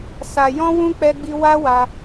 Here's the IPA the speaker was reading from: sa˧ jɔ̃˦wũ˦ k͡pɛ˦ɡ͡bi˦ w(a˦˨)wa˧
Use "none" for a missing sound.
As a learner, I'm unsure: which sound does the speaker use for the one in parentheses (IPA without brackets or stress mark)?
a˦